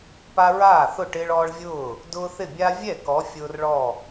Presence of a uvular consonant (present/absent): absent